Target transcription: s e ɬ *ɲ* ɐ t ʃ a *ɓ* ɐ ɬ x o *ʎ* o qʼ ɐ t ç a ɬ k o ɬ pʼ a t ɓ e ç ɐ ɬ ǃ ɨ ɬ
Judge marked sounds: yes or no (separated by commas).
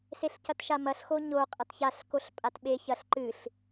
no, no, no